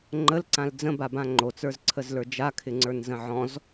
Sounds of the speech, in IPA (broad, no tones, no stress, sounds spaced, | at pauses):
ŋ͡ǃ ə l ǀ ã l d͡z ə̃ b a b ã ŋ͡ǃ o t͡s ə˞ z ǀʰ ə z l ə˞ d͡ʒ a kʰ ɪ ŋ͡ǀ ə˞ n z ə̃ ʕ ɔ̃ z